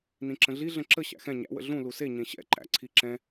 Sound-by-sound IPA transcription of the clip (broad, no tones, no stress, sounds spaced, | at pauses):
n ĩ ǁ ə̃ ɮ i ɮ ə̃ ǁ ə ɕ æ̰ x ɛ̃ ɲ æ̰ w ə̰ ɮ ũ l u s e ɲ ẽ ɕ ɛ̰ ǃ æ̰ ǀʰ i ǁ ɛ̃